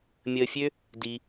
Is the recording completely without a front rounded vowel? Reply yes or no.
no